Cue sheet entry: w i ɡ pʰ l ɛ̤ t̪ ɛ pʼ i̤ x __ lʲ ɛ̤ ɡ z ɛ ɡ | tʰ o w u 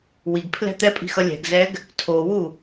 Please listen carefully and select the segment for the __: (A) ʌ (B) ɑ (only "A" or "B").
A